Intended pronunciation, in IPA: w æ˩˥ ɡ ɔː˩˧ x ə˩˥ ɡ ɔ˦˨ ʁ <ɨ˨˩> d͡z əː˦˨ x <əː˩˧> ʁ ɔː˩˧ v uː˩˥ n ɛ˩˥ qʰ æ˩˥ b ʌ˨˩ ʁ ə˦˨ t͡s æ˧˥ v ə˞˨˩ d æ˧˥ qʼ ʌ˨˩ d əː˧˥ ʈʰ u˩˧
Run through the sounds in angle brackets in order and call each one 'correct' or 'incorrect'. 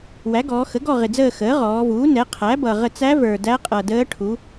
incorrect: ɪ˨˩, incorrect: əː˩˥

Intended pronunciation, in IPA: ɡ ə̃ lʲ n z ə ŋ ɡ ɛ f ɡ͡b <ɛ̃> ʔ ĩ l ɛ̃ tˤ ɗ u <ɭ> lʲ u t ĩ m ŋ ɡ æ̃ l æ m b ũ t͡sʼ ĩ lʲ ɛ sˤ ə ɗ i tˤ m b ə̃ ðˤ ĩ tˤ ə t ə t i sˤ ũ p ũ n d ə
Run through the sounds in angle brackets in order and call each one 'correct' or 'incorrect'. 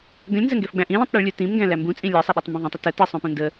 incorrect: æ̃, correct

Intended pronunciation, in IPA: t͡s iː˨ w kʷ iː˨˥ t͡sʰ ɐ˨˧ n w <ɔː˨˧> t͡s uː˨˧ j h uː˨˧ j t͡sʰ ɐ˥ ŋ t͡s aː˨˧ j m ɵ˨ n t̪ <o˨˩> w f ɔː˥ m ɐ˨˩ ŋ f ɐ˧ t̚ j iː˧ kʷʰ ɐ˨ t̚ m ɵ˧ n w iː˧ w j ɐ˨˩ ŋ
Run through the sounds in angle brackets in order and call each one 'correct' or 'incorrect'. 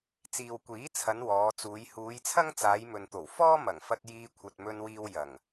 correct, correct

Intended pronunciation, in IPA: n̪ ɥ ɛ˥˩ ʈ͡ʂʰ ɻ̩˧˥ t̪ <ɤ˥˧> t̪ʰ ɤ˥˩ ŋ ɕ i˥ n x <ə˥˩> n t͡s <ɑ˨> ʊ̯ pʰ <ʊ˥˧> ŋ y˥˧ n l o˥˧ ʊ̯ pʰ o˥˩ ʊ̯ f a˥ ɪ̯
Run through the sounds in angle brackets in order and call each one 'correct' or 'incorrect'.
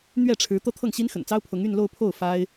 incorrect: ɤ˥, incorrect: ə̰˨˩, incorrect: ɑ˥, incorrect: ʊ˧˥

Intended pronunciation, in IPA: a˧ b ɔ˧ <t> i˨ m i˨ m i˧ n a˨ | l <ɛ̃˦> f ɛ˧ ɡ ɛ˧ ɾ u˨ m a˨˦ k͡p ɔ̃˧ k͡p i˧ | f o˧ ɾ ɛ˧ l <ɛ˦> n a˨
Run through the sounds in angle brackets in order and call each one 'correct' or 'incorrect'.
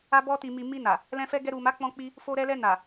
correct, incorrect: ɛ̃˧, incorrect: ɛ˧

